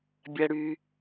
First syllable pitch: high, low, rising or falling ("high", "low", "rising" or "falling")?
low